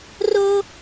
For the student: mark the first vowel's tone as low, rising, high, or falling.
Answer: high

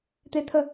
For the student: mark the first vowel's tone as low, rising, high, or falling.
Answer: high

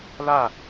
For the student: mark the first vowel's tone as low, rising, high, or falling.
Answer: falling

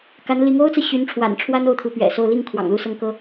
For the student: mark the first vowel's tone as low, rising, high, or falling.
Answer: rising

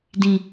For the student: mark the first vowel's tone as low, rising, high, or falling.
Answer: low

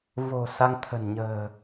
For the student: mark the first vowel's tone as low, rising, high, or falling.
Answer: low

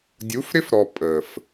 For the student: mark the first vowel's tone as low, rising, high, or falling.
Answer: rising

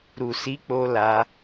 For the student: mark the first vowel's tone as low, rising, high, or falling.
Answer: low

